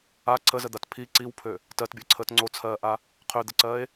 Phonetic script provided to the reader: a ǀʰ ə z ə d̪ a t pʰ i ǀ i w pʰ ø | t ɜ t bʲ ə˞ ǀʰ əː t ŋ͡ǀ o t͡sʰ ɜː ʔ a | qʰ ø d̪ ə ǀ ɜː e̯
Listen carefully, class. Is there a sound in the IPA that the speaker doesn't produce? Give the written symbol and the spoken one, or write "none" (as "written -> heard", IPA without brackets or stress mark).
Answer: none